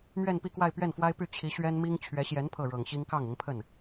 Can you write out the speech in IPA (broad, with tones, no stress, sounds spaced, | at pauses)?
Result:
m ɥ ɛ˥˧ n p i˥˧ k w a˥˧ ɪ̯ p ɥ ɛ˥˩ n f w a˥ ɪ̯ p y˥˩ t͡ɕʰ i˧˥ ɕ ɥ ɛ˥ n m i˥ ŋ t͡ɕʰ ɥ ɛ˧˥ ɕ j ɛ˧˥ n pʰ ɤ˥˩ ɻ ɤ˨˩ ŋ ɕ i˥ ŋ k ɑ˥˩ ŋ ʊ˧˥ ŋ pʰ ə˥˩ n